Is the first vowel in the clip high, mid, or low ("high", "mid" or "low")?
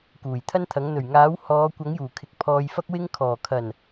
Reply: high